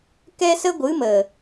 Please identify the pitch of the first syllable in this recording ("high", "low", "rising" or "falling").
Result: high